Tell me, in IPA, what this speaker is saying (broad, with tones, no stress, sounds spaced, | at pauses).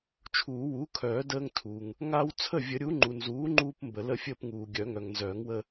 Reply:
t͡ʃʰ uː˨˩˦ w u˩˥ kʰ œː˨˩˦ d əː˦ ŋ tʰ uː˩ ŋ | ŋ a˦ w t͡sʰ ə˥˩ vʲ ə˨˩˦ ɾʲ u˩˥ ŋ͡ǃ u˩ n z uː˩˥ ŋ͡ǃ uː˦ p m b ə˩ l ə˥˩ fʲ əː˦ p ŋ uː˩ ɡʲ œ˨˩˦ ŋ œ˩ ŋ n z œː˨˩˦ ŋ w əː˦